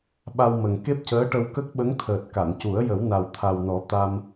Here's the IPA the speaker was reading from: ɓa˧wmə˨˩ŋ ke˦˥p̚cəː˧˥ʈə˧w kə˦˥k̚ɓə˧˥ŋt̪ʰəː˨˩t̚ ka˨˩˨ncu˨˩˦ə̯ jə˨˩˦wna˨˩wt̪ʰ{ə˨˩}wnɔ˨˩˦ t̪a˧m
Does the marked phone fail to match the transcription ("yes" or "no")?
yes